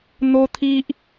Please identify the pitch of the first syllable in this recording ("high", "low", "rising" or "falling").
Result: high